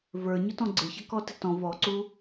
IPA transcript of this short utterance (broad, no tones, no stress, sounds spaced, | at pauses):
v ə˞ ɲ ʊ t ɔ̃ ɡ͡ǀ ɪ ç ʌ k ɔ t ɪ t ɔ̃ v ɔ ǀ u